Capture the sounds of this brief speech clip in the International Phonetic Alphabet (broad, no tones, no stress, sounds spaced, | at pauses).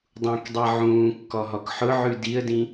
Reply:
dˤ ũ k dˤ i ʕ ũː kː ɔ ɦ ɔ k ħ ʊ ʕ ʉ d i ə̯ d ĩ